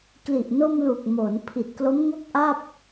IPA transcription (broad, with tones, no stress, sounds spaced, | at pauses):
k l i˨˩ ʔ n o˧ m l u˨˩ k̚ m oː˩˦ n pʰ i˨˩ t̚ k l o˦˥ m ŋ o˥˩ k̚ ʔ a˥˩ p̚